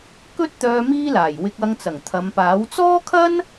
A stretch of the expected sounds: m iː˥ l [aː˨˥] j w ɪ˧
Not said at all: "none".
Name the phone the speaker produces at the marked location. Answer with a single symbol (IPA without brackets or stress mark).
aː˨˩